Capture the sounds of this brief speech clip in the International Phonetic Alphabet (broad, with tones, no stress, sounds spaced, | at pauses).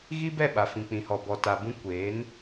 ɣ i˦ b ɛ˦˨ ɓ a˨ f ĩ˨ k͡p ĩ˨ h ɔ˨ b ɔ˨ t a˨ b ũ˦ kʷ eː˨˦ n